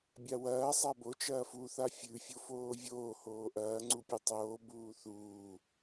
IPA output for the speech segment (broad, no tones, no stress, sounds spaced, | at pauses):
bʲ a w ɐː sˤ a b o t͡ʃ ɐː f u θ a fʲ ʉ fʲ o f oː vʲ oː h oː ʔ ɐː ŋ͡ǀ u pʲ u tˤ oː b uː θ uː